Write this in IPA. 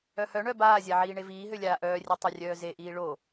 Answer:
œhœɳœ baːzʲa ʕiːɳeviːɦø lʲaːʔœːrʲe tˤœrʲœːzeʔiː ɭo

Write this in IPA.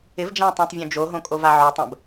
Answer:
ɪv d͡ʒãtˤõtˤ vʲõd͡ʒo ɦõkʼovaʕo tˤə̃b

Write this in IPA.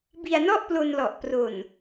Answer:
bi˧a̯nɔ˥˩ʔplo˧nlɔ˨˩ʔ pro˨˩n

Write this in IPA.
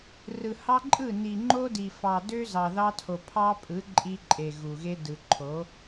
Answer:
rɯ˨hɑ˦ǃʼɯ˦˨ ni˨ŋ͡ǃo˦di˨ fɑ˨dø˦zɑ˨ ðɑ˦tʰo˨ pʰɑ˦pʼɯ˨˦ ǃʼi˦ǃʼe˨ɣu˨ɣe˦ dɯ˨ǃʰo˨˦

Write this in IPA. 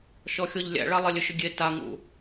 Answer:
ʃɔxʲɔʎlʲæ̰ɭa lˠelʲʏʃʏɡʲe taŋṵ

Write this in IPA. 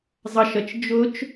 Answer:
zˤʌʃʌt͡ʃ d͡ʒʊt͡ʃ

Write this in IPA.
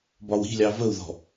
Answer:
bɒwi̤lʲɑ vəu̯ðɔ̤

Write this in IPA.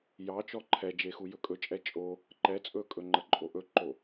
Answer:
jɑt͡ʃɔ ǃʰɛd͡ʒexu jɵkʼɵt͡ʃʼɛ t͡ʃʼo | ǃɛ t͡sʼɵkʼɵŋ͡ǃə ǃʼoʔɵǃo

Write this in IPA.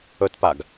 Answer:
ɵtpaɡ

